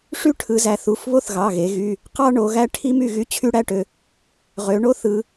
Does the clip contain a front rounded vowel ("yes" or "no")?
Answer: yes